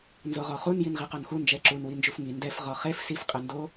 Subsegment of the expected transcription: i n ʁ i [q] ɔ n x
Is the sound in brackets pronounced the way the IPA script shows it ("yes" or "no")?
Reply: yes